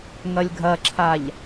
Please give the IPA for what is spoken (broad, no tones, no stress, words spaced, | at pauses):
ŋɐlʲɡʱɐǁʰaʎ